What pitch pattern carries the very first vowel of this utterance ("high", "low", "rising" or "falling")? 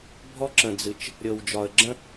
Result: high